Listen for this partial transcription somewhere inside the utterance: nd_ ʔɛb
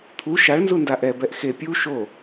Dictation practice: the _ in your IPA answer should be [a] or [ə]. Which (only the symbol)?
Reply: a